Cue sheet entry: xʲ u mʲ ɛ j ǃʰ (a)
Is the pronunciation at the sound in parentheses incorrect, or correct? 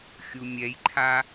correct